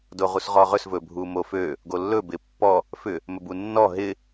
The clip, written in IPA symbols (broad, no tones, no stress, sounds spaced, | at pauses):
d o ʁ u s ʁ ɔ ʁ ɵ s v ɵ bʱ u m o f ø | ɡ o lː ɵ b ɪ pː ɔ | f ʏ | m ɵ b u nː ɔ ɦ ɪ